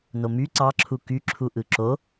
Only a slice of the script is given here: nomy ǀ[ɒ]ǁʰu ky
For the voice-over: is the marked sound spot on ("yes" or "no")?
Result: no